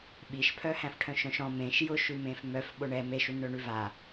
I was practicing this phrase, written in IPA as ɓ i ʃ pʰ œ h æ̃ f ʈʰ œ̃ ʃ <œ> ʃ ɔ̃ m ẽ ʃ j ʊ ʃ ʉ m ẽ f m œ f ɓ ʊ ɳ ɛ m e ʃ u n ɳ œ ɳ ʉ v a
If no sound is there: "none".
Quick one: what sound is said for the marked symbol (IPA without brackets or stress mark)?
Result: œ̃